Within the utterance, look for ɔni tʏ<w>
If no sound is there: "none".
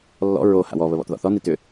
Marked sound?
none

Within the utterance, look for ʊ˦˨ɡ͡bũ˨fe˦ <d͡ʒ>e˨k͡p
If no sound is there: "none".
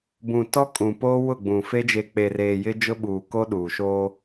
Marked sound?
d͡ʒ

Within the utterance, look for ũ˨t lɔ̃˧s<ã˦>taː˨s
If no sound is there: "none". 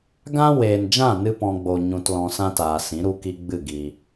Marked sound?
ã˦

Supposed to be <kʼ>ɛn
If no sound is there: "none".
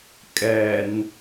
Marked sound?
kʼ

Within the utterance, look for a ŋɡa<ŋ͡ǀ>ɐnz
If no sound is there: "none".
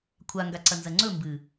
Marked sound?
ǀ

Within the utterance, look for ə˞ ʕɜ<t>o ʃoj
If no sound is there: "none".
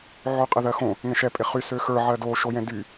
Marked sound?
d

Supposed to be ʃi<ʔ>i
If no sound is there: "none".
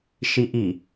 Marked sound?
ʔ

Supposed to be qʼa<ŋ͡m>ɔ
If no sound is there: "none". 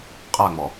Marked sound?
ŋ͡m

